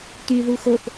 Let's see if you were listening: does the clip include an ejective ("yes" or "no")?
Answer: no